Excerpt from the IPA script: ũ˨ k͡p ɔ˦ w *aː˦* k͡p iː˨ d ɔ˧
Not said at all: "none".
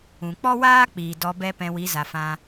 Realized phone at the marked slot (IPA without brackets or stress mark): aː˦